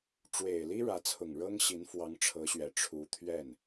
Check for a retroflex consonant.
present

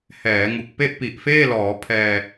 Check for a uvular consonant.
absent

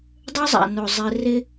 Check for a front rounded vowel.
present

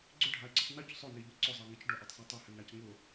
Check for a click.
present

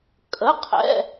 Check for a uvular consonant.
present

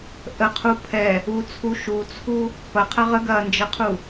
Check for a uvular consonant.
present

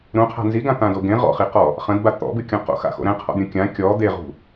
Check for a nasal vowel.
present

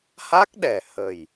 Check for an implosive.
present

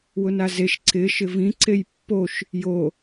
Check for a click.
present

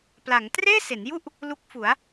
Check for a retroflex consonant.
absent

